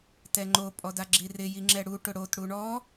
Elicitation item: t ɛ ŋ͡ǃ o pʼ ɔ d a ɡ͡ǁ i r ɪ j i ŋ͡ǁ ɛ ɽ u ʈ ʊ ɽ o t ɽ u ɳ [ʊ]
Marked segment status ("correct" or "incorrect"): incorrect